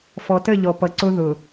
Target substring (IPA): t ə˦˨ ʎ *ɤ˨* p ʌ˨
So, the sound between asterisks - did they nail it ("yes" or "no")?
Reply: no